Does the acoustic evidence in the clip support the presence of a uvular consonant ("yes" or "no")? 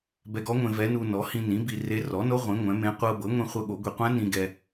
yes